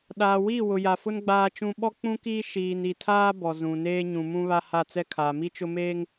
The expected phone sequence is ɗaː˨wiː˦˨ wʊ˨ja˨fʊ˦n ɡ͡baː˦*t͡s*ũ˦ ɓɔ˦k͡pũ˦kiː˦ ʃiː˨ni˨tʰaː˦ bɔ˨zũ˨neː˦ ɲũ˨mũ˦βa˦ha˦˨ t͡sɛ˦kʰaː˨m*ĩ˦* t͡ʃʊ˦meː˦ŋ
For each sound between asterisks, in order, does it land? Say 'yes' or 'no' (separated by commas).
no, no